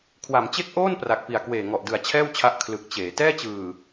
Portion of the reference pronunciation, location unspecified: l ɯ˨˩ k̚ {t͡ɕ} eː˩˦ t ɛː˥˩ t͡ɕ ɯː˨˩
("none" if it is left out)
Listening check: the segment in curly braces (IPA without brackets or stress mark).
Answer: t͡ɕ